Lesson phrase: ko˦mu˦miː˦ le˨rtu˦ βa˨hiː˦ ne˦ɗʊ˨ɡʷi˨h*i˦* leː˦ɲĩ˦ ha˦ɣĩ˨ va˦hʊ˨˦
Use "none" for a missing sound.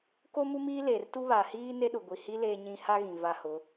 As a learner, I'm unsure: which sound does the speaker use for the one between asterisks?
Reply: i˦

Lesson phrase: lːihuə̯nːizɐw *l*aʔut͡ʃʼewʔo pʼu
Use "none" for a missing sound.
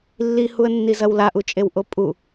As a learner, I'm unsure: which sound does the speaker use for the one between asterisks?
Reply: l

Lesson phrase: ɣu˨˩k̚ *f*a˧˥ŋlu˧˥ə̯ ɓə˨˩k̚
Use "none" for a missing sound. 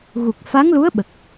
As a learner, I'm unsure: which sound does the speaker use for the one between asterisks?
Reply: f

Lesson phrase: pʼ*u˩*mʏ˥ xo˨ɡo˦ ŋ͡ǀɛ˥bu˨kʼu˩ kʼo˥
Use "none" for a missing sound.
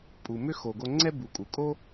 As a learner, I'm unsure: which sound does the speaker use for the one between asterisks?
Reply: u˩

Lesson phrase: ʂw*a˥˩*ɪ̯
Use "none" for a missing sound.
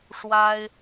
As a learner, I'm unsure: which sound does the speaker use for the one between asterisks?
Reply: a˥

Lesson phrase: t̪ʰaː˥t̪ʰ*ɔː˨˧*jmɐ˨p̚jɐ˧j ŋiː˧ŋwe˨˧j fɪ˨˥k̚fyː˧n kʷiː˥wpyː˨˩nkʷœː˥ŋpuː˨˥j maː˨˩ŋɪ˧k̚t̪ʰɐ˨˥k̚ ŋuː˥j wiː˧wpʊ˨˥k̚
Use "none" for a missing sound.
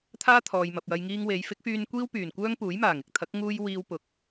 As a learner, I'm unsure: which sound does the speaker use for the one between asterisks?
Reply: ɔː˨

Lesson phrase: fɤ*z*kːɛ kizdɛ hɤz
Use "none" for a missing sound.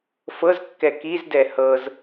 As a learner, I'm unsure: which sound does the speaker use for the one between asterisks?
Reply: z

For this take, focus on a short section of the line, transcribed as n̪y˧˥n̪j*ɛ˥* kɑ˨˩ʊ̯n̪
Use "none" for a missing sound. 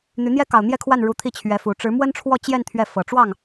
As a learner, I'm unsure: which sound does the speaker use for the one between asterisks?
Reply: ɛ˥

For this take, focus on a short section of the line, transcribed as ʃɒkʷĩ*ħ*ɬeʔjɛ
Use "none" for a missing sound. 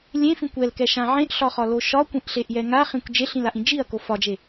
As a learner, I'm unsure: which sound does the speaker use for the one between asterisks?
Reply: ʔ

